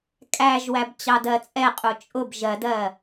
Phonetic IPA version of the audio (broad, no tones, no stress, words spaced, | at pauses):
kʼæʒwæb t͡ɕɑdɜt͡sʼɛqʼu t͡ʃʼʊb ʒɜdɜ